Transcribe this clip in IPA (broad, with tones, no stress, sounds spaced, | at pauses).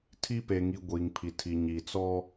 tʰ i˦ p e˨ ŋ i˨ ɡʷ iː˨ ŋ pʰ i˨ tʰ i˨ ɲ i˨ t͡s ɔ˦